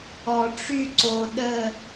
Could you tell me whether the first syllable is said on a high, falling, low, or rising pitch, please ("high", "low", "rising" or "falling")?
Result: low